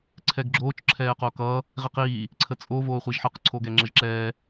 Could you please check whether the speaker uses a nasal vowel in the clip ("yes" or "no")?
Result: no